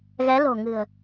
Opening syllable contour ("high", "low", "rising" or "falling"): rising